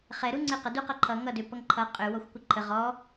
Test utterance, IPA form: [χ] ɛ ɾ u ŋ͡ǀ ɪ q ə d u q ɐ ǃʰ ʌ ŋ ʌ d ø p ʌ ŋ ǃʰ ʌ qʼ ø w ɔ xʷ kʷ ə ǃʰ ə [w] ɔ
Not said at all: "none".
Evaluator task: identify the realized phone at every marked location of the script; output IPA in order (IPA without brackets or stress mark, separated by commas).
χ, ʁ